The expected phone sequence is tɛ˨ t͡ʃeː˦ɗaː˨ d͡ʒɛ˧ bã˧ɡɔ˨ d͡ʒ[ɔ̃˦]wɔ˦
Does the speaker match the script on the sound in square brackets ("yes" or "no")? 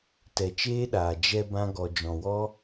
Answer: no